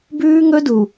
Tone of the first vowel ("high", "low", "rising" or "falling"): high